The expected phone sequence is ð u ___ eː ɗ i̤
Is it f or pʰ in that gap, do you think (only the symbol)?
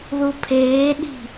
pʰ